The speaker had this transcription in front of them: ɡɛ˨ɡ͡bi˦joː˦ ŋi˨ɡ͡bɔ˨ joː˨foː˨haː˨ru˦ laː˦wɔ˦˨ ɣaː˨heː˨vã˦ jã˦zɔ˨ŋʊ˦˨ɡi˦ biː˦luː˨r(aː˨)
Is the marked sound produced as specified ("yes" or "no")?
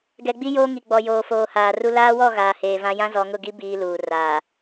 yes